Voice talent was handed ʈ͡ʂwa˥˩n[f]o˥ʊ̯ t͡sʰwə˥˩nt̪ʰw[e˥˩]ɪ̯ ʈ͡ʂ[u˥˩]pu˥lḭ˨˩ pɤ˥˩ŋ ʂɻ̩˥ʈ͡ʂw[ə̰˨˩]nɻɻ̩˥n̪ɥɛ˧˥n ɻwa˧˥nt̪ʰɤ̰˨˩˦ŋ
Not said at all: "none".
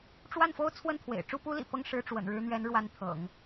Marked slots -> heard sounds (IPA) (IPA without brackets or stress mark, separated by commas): f, ḛ˨˩, u˥˩, ə̰˨˩